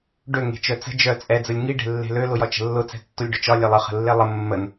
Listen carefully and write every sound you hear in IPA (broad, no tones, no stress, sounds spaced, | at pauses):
ɖ ø ŋ e̤ t͡ʃ œ t͡s ə̤ d͡ʒ œ t͡sʼ ɛ d͡z ə lʲ ŋ i ɖ e̤ lː e̤ l ø l ʊ j ɒ t͡ʃ ə̤ lː ʊ t͡s ɛ̤ tː o lʲ ɖ ʊ t͡ʃ ɒ lʲ e lˠ ə χ ə̤ lː e lˠ ə mː ə n